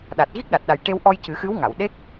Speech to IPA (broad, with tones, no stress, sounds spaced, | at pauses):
ɗ a˨˩ t̚ ɣ i˦˥ k̚ ɗ a˨˩ t̚ ɗ a˨˩ j ʈ e˧ w ʔ ɔ˧ j c ɨ˨˩˦ x ɨ˧˥ w ŋ a˨˩˨ w ɗ e˦˥ k̚